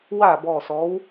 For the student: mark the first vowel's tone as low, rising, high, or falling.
falling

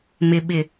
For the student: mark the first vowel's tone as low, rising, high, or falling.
low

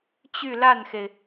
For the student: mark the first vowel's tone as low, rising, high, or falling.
falling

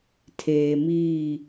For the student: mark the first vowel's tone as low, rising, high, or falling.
low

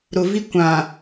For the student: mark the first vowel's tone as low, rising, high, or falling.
low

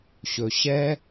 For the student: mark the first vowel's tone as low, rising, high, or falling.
low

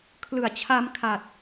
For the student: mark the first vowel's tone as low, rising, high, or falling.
low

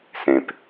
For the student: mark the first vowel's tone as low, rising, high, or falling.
low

